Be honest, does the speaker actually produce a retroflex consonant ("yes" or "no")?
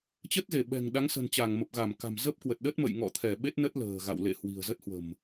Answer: no